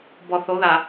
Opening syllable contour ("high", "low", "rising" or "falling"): low